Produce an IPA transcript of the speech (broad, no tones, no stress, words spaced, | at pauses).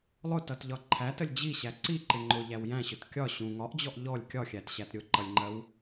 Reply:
lˠʊtʌtʎɒ ǃʰætəlʲ d͡ʑiɕæ ǀiǃɪ ŋ͡ǃʊʎæw jæ̃ɕʊt kʲɒ ɕũ ŋɒʔd͡ʑɔʔ ʎɔlʲ kʲɒxʲætɕæt ɾʲʊǃʌlʲŋ͡ǃɜw